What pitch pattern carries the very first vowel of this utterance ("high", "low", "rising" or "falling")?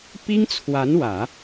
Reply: high